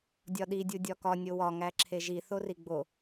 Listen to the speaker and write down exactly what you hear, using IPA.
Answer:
dʲ ɒ ɗ i dʲ u dʲ ɒ k ɒ nʲ o w ɒ ŋ æ ǁʰ e ʒ i θ o r i ɡ͡b o

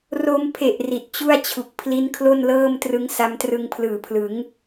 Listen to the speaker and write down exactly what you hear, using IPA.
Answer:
r o˧ m pʰ e˨˩ ʔ r i˨˩ t̚ t͡ɕ u˥˩ a̯ t͡ɕʰ u˨˩ k̚ pʰ l i˦˥ n kʰ l o˥˩ n l ɤː˥˩ m t r ɯ˦˥ ŋ s a˦˥ m t r ɯ˧ ŋ pʰ l ɯː˨˩ pʰ l ɯ˩˦ ŋ

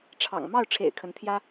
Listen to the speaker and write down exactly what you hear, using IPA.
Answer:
ʈ͡ʂʰ ɑ̰˨˩ ŋ m ɑ˥˩ ʊ̯ ʈ͡ʂʰ ḛ˨˩ ɪ̯ kʰ ə˧˥ n t̪ʰ j ä˥

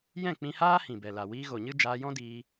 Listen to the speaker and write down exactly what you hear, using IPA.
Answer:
j ɛ̃˦˨ k͡p ĩ˧ h aː˦ h ĩ˨ b ɛ˨ l a˨ w iː˧ ɣ o˨ ɲ ɨ˦ d͡ʒ aː˧ j ɔ̃˦ d iː˧

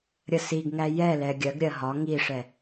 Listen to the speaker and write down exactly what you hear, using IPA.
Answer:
ɾʲ ə s i ɡ ŋ æ j ɛ l ɛ ɡʲ ɜ ɡ ɾʲ ɜ ɦ ɒ ŋ i ʂ ɛ

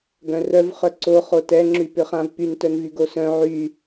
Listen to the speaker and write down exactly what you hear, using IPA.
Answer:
ɡ œ̃ r œ v χ œ ǀ o χ o t ɛ ŋ͡ǁ y p ʏ χ ã v p y n t œ n v y ɡ o s œ̃ ʕ y

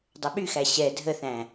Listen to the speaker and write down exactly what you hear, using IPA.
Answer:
dˤ ə ɓ y x æ ɕ ɛ dʱ ə θ æ̃

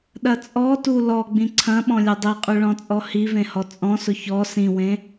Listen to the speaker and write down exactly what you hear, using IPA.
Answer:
ɗ ɐ t͡sʼ ɔ t u l ɔ ɡ͡b ĩ ǀʰ ɐ̃ ɓ ɔ̃ lʲ e dˤ i qʼ y ɭ ɔ̃ t͡sʼ ɔ h i v ẽ h ɔ t͡sʼ ɔ̃ s ʊ ç ɔ s ĩ w ẽ

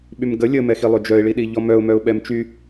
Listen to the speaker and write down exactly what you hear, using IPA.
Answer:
ɓ y m ɡ ə lʲ ə m ɛ x i lˠ ø d͡ʒ œ ɪ̯ ɭ i ɗ i ʎ ɔ m œ ʊ̯ m œ ʊ̯ ɓ ɛ m t͡ʃ y

